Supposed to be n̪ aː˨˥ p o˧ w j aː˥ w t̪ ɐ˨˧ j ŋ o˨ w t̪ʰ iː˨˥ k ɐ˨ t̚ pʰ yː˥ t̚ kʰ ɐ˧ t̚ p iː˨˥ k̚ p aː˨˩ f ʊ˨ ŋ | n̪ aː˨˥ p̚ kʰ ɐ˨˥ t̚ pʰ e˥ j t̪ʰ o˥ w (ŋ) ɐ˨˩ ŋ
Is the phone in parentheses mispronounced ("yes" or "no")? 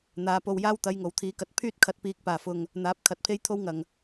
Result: no